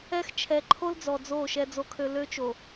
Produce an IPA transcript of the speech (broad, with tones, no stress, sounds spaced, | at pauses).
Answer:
ɛ˦ x t͡ʃʰ ɛ˨ ǃʰ o˦ l d͡z ɔ˨ d͡z o˦˨ ʃ ɛ˦ d͡z o˦ kʰ ø˦ l ø˦ t͡ʃ o˨